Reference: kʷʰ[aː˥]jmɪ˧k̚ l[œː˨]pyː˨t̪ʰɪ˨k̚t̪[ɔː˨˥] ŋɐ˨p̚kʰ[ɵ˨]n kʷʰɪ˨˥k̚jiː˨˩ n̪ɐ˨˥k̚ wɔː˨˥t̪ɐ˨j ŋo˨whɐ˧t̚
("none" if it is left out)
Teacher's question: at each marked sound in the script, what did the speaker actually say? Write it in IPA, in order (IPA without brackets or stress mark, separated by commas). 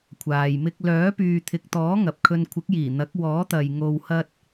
aː˨, œː˨˥, ɔː˨˥, ɵ˧